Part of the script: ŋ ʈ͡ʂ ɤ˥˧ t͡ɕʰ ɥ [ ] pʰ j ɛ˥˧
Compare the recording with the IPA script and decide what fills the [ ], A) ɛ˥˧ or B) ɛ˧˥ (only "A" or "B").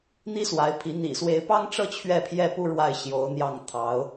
A